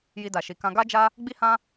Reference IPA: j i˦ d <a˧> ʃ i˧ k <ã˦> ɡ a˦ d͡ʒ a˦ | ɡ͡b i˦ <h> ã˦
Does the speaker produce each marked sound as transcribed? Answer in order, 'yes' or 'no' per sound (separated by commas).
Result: yes, yes, yes